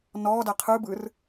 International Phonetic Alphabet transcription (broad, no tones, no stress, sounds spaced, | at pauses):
n ɔː d æ qʰ ɯ b ɯ r